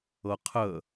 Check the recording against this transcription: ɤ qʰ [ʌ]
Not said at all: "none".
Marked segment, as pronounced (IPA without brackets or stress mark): ə